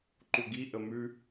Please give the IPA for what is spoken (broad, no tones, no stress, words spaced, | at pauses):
ǃuɡi ʔəmʉ